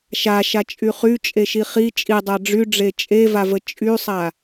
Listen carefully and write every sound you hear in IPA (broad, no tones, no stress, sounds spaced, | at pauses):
ʃ a ʃ a t͡ʃʼ y χ y t͡ʃʼ e ʃ i χ i t͡ʃʼ i dˤ a ɖ͡ʐ y ɖ͡ʐ e t͡ʃʼ e v a v ə t͡ʃʼ y sˤ a